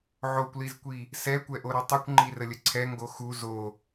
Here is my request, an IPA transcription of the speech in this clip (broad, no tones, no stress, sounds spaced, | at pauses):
ʕ o kʷ l i z kʷ i | s ɛ kʷ ɛ ʔ o ɾ u tˤ u kʷ ŋ͡ǃ i r ə lʲ ə ǀʰ ɛ ŋ ɡ o x u z o